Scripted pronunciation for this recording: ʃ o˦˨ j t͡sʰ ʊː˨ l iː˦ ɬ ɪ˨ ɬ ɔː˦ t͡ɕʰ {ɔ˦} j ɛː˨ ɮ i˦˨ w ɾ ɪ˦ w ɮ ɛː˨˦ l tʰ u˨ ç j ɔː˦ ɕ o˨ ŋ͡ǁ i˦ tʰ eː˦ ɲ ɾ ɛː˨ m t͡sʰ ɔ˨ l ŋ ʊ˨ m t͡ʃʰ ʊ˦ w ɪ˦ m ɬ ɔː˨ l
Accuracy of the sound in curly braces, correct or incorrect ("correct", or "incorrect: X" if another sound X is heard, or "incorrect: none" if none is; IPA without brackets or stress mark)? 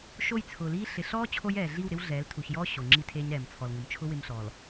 incorrect: o˦